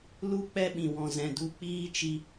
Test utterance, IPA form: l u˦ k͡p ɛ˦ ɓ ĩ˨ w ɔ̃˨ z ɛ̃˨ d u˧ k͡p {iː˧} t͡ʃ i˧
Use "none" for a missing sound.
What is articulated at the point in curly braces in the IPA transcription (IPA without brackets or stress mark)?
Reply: iː˦